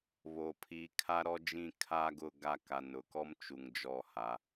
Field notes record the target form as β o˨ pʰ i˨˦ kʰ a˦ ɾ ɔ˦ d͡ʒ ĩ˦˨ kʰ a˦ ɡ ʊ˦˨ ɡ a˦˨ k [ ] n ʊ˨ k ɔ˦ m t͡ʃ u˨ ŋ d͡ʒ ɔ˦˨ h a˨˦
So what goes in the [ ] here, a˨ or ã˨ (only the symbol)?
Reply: a˨